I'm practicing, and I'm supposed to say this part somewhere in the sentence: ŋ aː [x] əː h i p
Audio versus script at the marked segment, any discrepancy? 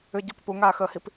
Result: no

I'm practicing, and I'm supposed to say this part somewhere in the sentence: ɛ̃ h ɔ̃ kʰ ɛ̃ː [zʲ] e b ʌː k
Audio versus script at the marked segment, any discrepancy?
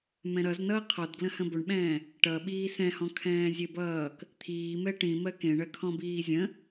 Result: no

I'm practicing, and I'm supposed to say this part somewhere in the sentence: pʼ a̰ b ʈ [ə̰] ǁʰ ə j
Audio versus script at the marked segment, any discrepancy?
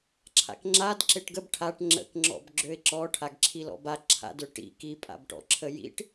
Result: yes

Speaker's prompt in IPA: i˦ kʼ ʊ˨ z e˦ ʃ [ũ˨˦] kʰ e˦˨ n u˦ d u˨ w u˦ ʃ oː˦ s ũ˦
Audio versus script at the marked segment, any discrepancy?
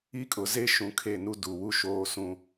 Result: no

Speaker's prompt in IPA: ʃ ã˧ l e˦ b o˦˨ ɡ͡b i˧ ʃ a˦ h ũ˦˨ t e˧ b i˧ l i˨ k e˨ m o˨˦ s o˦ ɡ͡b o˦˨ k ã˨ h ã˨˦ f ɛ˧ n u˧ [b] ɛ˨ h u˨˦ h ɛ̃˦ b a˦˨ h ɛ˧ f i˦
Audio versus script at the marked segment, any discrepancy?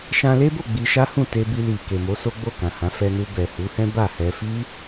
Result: no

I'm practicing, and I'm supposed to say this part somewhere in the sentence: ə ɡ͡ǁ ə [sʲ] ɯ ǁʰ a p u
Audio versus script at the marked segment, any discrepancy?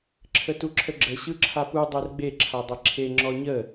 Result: yes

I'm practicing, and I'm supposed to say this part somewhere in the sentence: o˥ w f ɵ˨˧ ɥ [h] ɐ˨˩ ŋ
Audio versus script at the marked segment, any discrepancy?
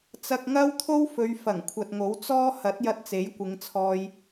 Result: yes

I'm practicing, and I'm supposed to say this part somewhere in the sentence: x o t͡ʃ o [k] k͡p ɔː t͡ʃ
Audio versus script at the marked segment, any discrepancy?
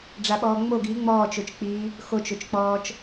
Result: yes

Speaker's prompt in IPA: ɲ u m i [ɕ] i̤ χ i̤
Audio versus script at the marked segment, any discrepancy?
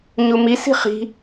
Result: yes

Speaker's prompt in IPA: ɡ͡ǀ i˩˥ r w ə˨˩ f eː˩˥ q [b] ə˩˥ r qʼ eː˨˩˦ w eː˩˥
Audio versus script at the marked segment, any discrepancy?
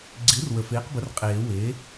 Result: no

